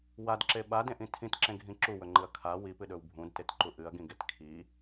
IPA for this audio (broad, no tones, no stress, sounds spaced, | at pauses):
w a d ǁ e ɓ a d ẽ ʔ ĩ tʰ ĩ t ǁ ẽ ɡʱ ĩ ǁ u w ɵ ŋ͡ǃ ɨ ɐ̯ kʰ a w i p ɨ ɗ ɵ w bʱ ũ d t e t ǃ u ʔ ɨ ɐ̯ ɡ ĩ ɡ e t kʰ i